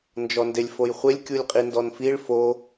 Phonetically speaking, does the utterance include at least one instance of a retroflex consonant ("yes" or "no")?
yes